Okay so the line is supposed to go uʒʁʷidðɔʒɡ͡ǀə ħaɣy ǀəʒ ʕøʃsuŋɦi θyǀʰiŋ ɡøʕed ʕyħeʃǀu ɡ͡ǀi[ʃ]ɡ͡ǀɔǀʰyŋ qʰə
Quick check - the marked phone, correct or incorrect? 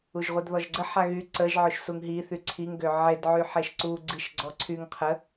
correct